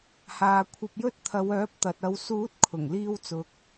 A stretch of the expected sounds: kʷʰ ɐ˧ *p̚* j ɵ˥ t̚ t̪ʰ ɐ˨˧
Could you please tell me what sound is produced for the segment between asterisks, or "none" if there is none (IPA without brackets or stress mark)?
p̚